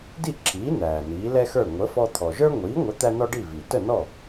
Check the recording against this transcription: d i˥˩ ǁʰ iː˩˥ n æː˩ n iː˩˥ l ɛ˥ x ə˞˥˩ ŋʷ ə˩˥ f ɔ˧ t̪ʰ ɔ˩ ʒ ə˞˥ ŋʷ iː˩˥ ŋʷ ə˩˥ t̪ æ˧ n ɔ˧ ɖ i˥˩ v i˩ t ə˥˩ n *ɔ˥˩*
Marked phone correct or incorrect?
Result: correct